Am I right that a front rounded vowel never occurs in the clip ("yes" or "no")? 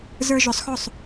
no